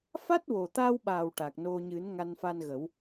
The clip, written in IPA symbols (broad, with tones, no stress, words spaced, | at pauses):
fa˦˥t̚wo˨˩t̪a˧wɓa˨˩w ʈa˨˩k̚no˧ ɲɨ˨˩˦n ŋa˧nfa˧nɣə˨˩˦w